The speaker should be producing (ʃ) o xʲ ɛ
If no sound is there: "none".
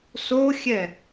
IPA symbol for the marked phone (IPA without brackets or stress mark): s